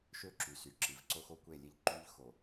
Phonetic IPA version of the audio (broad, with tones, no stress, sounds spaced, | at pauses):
ʃ ø˦ ǁ y˨ s y˨ ǁ i˨ v ǀ o˦ x o˦ kʷ e˦˨ lʲ e˦ ʎ ǃ y˦ ʎ x o˨